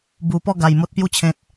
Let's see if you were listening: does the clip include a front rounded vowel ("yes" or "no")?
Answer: no